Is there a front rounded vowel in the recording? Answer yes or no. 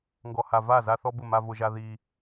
no